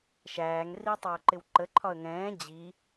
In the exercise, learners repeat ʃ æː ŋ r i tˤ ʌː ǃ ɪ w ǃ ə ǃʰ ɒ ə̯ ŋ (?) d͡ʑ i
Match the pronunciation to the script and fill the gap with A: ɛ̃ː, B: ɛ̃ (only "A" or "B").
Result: A